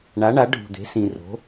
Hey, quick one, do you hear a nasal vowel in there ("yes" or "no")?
yes